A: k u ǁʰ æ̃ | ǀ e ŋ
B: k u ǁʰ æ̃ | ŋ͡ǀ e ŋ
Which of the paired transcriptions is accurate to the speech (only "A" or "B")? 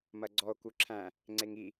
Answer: B